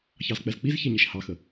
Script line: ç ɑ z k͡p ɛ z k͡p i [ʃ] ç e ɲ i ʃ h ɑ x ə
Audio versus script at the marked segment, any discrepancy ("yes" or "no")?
yes